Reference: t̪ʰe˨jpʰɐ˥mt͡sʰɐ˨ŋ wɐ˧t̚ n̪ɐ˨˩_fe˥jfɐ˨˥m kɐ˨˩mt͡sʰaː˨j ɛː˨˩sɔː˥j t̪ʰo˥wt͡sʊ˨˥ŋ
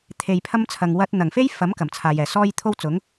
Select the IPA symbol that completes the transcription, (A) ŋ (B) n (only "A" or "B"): A